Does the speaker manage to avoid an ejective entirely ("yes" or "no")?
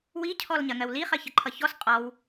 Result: no